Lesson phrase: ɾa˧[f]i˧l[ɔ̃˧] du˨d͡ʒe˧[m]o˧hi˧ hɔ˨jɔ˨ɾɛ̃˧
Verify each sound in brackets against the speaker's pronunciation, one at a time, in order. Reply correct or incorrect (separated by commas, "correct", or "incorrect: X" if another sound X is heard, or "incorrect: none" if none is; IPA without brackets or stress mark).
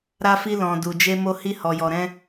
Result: correct, incorrect: ɔ̃˨, correct